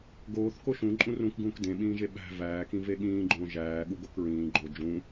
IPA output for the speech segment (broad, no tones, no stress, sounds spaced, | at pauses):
ɡ oː θ k o ʃ ũ ǃʼ ũ r ũ k ɡ ũː k d ẽ ɓ ĩː ʒ e ɓ æ̤ v æː k ĩ v e ɠ ĩː ɡ͡ǃ õː ʒ æː ɠ u ɡ o k ɹ ĩː ɡ͡ǃ o d͡ʒ ũ